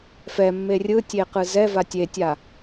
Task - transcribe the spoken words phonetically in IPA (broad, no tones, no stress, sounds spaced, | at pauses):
f ɛ mː e rʲ ɯ tʲ e q ɯ z ɛ v a tʲ e tʲ a